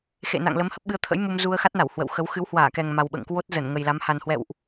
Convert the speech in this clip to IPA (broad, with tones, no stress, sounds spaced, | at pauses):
x ḛ˧˨ n a̰˧˨ ŋ l ə˨˦ m h ə˦˥ p̚ ɓ ɨ˨˦ ə̯ t̪ʰ ə̰˧˥ j m u˧ m z u˧ ə̯ x a˦˥ t̚ n a˧˩ w h w ə̰˧˨ w x ə˨˦ w x ɨ˨˦ w h w aː˧˩ k ɛ˨˩ ŋ m a˨˩ w ɓ ə̰ː˧˨ ŋ k w o˦˥ t̚ z ə˧˩ n ŋ ə˨˩ j l a˨˦ m h a˨˩ n h w ɛ̰˧˨ w ʔ